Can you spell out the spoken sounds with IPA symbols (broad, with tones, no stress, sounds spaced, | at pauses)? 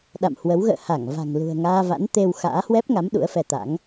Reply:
ɗ a̰˧˨ m h w ə˨˦ w ɣ ə̰ː˧˨ h a˧˩ ŋ v a̤˨˩ ŋ l ṳ˨˩ ə̯ ŋ aː˧ v a̰˧˥ n t̪ e˧ w x a̰ː˧˥ h w ɛ˦˥ p̚ ŋ a˨˦ m ɗ ṵ˧˥ ə̯ f ɛ˧ t̪ a̰˧˥ ŋ